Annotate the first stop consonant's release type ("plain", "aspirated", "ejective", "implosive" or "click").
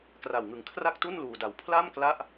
plain